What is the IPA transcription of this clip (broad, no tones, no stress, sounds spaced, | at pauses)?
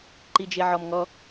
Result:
ǃ i d͡ʒ e ʕ ɔ m ŋ ɔ